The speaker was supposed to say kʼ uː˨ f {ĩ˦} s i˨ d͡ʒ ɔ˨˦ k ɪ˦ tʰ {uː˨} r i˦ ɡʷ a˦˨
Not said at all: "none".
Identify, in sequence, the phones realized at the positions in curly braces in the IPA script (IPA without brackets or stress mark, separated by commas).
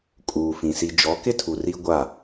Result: ĩ˨, u˨